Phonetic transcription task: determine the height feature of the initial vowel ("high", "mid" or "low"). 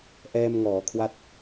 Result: mid